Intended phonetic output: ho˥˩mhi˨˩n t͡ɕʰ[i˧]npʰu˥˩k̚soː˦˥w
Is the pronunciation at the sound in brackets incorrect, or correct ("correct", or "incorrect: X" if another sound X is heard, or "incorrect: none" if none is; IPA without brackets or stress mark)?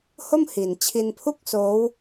correct